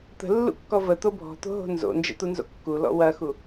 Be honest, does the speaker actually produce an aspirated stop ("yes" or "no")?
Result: no